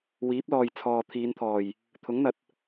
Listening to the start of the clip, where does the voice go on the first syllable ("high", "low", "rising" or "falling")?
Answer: rising